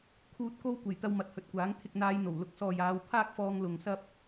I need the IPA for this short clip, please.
kʰ uː˨ t̚ k o˧ w kʷ e˨˩ j t̪ ɐ˧ w m ɐ˨˥ t̚ h ɵ˨ t̚ kʷ aː˨˥ ŋ t̪ʰ ɪ˨ k̚ n̪ aː˨˧ j n̪ o˨˩ w l ʊ˨˥ k̚ s ɔː˨ j aː˨˧ w pʰ aː˥ k̚ f ɔː˧ ŋ l ʊ˨ ŋ s ɐ˥ p̚

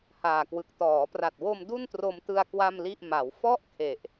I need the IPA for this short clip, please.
h aː˨˩ k w ɯ˨˩ k̚ t ɔː˩˦ p r a˨˩ t̚ w o˧ m d u˥˩ n t r o˧ m t ɯ˧ a̯ k w a˥˩ m l i˥˩ ʔ m a˩˦ w f ɔ˥˩ ʔ kʰ e˨˩ ʔ

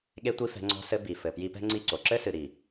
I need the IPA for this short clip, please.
ɠ e˦ tʷ i˦ f ɛ̤˧ ŋ͡ǀ ɔ̤˧ s ɘ˧ b i˨ f ɘ˨ p j i˧ p ɛ̤˦ ŋ͡ǀ i˦˨ ǀ o˨ ǁ ɘ˦ s ɨ˨ ɾ i˨

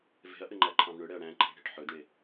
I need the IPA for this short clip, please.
v e̤ ɐ̯ ʔ ɘ ŋ͡ǃ æ ǃʰ ɑ̃ v ɳ ɵ ɽ ɛ ɐ̯ ɽ æ̃ ǃʰ ɛ̤ ɽ e̤ ʈ ħ ɵ d ɳ e

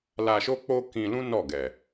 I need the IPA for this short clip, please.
l a˧ ʃ o˦ k͡p o˦ k ĩ˧ l ũ˦ n ɔ˦˨ ɡ ɛ˨

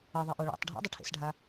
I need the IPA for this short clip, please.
ʌ ðˤ e ʔ o ɭ o̰ tˤ ɖʱ ḛ dˤ ɐ ʈʰ ḛ s ɖʱ a

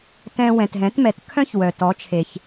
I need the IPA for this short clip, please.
t ɛ̃˧ w ɛ̃˩ t ɦ ɛ̃˩˥ t m ɛ˩˥ t kʰ œ̃˥ ç w œ˩ t ɔ˩˥ t͡ʃʰ e˩ ç

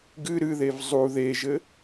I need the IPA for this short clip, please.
ɡ ɨ ɾ ɨ ð e v zˤ u ð e ʒ ɘ

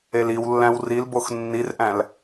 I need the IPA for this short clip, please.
e l i w lː æ̃ w r i l b o x nː i r ʔ æ̃ l

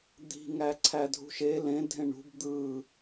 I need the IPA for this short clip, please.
d̪ i̤ ŋ æ ǀʰ æ dʱ ṳ ʃ e l ẽ dʱ ẽ ɳ ṳ b d̪ ɯ

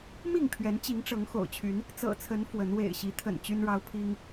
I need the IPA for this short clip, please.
m i˥˨ ŋ pʰ ɥ ɛ˨˦ n t͡ɕ i˨˦ ŋ ʈ͡ʂ ɤ˨˦ ŋ x o̰˨˩ ʊ̯ t͡ɕʰ y˨˦ n | t͡s ɤ̰˨˩ t͡sʰ ə˨˦ n f w ə˨˦ n w ḛ˨˩ ɪ̯ ɕ i˨˦ t̪ʰ ə̰˨˩ n t͡ɕ y˦ n ɻ ɑ˦ ʊ̯ pʰ i˦ ŋ

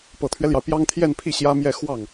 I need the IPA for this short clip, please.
p ɤ˨˩ t̪ʰ ɥ ɛ˦ l j ɑ˩ ʊ̯ p j ɑ˥ ŋ t̪ʰ j ɛ˥˧ n pʰ i˥˩ ɕ j ä˥ m j ɛ˥˧ x w ɑ˥˩ ŋ

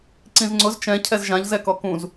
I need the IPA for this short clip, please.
ǀ ĩ z ŋ͡ǀ ʊ z t͡ʃ ɛ̃ cʰ ɛ z ʒ ã ʎ z ɛ k ɔ k ũ z

